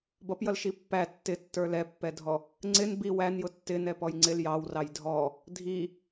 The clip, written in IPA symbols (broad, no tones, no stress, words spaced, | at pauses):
bʌpjʌlʃi pːæ tːɪtːə˞ lɛpːɛdʱɔ | ŋ͡ǀɪn bi wænjʊ tːɪ nɛpɔjŋ͡ǀɪl jɑwrɑj dʱɔ | dʱi